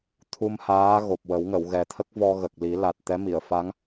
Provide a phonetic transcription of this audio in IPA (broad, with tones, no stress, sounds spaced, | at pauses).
t̪ʰ u˧ m h aː˧˥ ɣ o˨˩ p̚ w ə˨˩˦ w ŋ ə˨˩˨ w ɣ ɛ˨˩ t̪ʰ ə˦˥ k̚ v ɔ˧ ɣ ə˨˩ k̚ l i˨˩˦ l a˨˩ t̚ t̪ ɛ˧˥ m i˨˩˨ ə̯ f a˧˥ ŋ